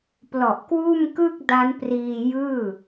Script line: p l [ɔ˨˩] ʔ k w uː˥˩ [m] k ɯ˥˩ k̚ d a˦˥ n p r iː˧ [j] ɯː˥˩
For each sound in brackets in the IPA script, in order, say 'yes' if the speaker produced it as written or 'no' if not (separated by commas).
yes, yes, yes